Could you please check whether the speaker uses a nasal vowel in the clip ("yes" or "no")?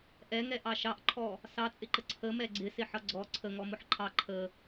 no